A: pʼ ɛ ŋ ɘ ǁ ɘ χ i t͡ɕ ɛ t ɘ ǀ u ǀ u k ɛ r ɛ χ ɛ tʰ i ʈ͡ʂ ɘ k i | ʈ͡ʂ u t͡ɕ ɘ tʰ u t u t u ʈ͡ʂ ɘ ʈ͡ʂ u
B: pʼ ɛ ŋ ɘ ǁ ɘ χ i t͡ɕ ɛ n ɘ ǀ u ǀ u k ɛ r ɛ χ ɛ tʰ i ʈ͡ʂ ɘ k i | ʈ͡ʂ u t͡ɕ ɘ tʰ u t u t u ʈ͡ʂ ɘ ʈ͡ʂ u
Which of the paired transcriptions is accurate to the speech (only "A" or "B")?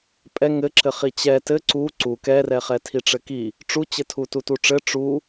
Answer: A